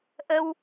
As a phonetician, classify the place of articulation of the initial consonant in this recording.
glottal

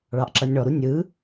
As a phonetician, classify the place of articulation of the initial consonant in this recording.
retroflex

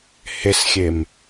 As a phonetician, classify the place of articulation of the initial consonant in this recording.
glottal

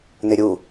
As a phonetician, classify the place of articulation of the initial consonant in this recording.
alveolar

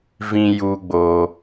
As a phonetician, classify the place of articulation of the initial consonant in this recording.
labial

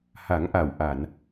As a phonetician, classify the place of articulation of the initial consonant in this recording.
glottal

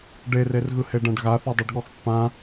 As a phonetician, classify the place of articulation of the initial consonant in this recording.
retroflex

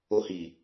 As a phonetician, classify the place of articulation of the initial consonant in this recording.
glottal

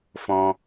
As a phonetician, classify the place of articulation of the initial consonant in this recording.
labial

